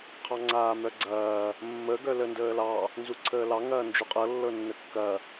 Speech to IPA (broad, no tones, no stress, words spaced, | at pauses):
qʰɑŋ͡ǀaːmœɡ͡ǀɐː | mːə ɡœləndəːlɑ | nzuǀʰəːlɑ ŋɐːnd͡ʒuqʼɤ lːɤnːəkːɐ